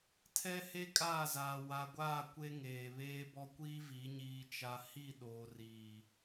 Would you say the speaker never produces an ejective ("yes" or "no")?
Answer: no